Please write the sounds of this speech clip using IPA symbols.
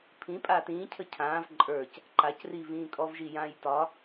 pʰ ĩ pʼ aː t ĩː cʰ ə cʰ ãː v ǃʼ ə˞ c | ǃ a c r i v ĩː kʼ ɔ v ʒ i j ãː j t ɒ

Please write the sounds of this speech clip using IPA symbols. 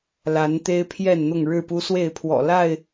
l a˨˦ n t̪ e˦ ɪ̯ pʰ j ɛ˥˨ n n̪ ʊ˥˨ ŋ ɻ ɻ̩˥˨ p u˦ s w e˥˨ ɪ̯ pʰ w ɔ̰˨˩ l a˥˨ ɪ̯

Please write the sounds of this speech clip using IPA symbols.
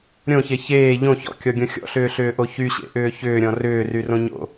ɾʲ õ ç e ç eː ʎ õ ç ɔ̰ kʲ ɔ ɡʲ õ xʲ ɔ̰ ɬ ʏː ɬ ʏː ʔ o ç y ɕ ḛ ʔ ʏː ç ʏː ɾʲ ɔ̃ r ʏː r y r õ ɲ o̰

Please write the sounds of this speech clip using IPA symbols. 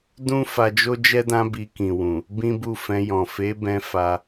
d ũ˦ f a˧ d͡ʒ o˦ d͡ʒ ɛ˦ d ã˦ b i˧ k ĩ˨ w ũ˨ | b ĩ˦ b u˦˨ f ɛ̃˧ j ɔ̃˨ f e˨˦ b ɛ̃˧ f a˧

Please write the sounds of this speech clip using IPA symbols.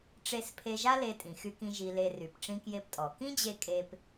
ʈ͡ʂ e˧ s pʰ e˧ ʒ a˥ l e˧ tʼ ĩ˩ x y˧ k ĩ˧ ʒ i˧ l e˧ r y˩ p ʈ͡ʂ ĩ˧ k j e˧ p tʼ ɔ˩ k ĩ˥ d͡ʑ e˧ kʼ e˧ p

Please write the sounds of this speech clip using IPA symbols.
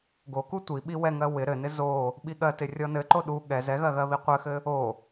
ɡ o k u tʷ i ɓ i w ɛ ŋ ɜ w ɪ ɾ ɘ n ɪ z o | ɓ i ɠ ɜ t ɪ rʲ ɔ n ɘ ǃ o ɗ u ɠ ɛ z ɛ ɣ ɜ ɣ ɜ β i qʷ ɘ x ɘ | o

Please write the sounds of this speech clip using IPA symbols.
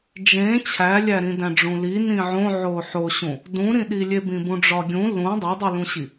d͡ʒ ẽ t͡ɕʰ æ lʲ æ ɾ ĩ d æ̃ ɖ͡ʐ ũ l i n ĩ ʕ õ ʕ o ħ o ɕ ũ | d ũ ɾ ĩ ɗ i lʲ e b ĩ b ũ ɖ͡ʐ ɒ ɡʲ ũ l ũ dˤ o dˤ u l ũ ɕ i

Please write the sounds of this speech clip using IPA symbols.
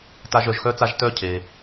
t a˧ ʒ œ˩ ʒ x œ˥ t͡s a˥ ʒ t œ˥ cʰ e˩

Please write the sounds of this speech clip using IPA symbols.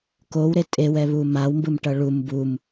k o w ɾ e tʼ e w ɛ β u m a w m b ɯ m ʈ ʌ ɭ u m b u m

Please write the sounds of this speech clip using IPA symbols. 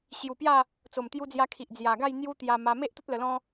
ɕ j u˨˩ p j a˥˧ | t͡s o˨˩ m t̪ j u˧ d͡z j a˧ kʰ i˨ ʔ d͡z j a˨˩ ɡ a˥˧ j n̪ j u˦ t̪ j a˧ m a˧ m e˦ ʔ t̪ ə˦ t̚ l ə˧ l ɔ̃˦

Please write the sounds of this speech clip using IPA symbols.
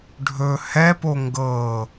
ɖʱ ɵ h ɛ p o ŋ ɡ ɤː

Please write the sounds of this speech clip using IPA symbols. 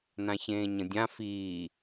n ã ç ẽː ɲ ə̃ dʲ ã f iː

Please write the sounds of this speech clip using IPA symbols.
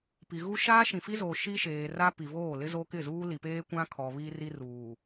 p i˨ ɣ u˦ ʃ aː˦ ʃ ĩ˨ f i˦ z oː˨ ʃ i˦ ʃ eː˨ r a˦ p i˨ v oː˦˨ l ɪ˦ z o˦ k ɪ˦˨ z uː˦ l i˨ p eː˦ kʷ ã˦ kʰ ɔ˨ β iː˦ r i˦ r uː˨

